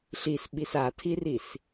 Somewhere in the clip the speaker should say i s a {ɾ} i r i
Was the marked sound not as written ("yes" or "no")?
yes